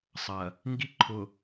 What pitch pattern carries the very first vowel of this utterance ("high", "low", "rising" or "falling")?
low